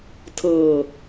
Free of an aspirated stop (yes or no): no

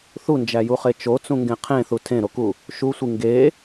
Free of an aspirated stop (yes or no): no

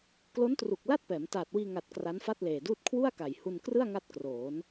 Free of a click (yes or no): yes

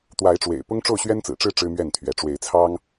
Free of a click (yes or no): yes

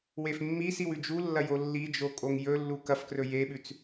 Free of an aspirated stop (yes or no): yes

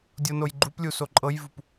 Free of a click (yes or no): no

